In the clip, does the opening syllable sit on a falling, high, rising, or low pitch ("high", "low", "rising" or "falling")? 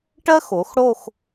high